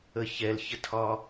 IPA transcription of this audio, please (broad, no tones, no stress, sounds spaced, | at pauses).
ə ç ɛ l ç ə tʰ ɒ